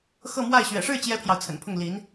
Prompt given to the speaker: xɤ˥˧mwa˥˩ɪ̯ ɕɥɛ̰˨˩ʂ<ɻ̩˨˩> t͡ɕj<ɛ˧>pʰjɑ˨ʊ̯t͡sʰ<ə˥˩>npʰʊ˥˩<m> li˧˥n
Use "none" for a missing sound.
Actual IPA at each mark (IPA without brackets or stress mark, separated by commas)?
ɻ̩˥˩, ɛ˥, ə̰˨˩, ŋ